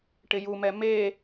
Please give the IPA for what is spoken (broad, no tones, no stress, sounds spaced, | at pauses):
ʈ ɪ j u m ɛ m e